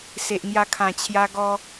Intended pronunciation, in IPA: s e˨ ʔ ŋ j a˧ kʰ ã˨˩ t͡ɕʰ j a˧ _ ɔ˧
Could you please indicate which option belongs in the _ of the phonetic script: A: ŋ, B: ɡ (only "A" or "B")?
B